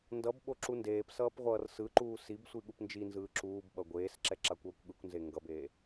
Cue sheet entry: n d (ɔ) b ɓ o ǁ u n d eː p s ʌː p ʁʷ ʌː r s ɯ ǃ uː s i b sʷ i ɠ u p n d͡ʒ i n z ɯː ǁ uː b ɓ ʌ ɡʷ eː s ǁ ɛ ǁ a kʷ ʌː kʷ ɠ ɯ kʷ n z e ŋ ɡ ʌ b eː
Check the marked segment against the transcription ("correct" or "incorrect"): incorrect